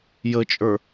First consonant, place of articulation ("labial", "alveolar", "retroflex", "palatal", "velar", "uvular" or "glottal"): palatal